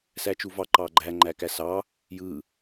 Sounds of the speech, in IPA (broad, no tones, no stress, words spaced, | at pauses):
sæt͡ʃuvɑ ǃɑɡ͡ǃæ ŋ͡ǃækæsɑ | jɯ